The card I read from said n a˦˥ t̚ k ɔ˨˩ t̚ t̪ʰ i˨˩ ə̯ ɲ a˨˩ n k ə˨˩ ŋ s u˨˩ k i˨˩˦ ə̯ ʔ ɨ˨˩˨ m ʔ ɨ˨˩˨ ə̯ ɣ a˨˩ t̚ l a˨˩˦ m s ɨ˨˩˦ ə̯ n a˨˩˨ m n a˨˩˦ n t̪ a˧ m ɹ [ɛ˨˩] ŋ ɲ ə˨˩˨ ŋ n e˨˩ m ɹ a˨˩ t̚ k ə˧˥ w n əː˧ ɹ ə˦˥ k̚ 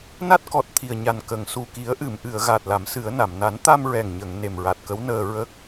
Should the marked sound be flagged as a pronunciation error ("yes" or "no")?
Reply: no